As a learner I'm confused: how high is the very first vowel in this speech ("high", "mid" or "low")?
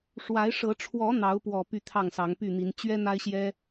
low